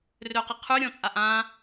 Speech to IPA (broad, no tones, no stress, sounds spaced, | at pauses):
r ø q ɪ qʰ y ɾʲ ɔ̃ t͡sʼ a ʔ ã